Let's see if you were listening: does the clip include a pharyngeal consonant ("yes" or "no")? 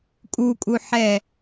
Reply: yes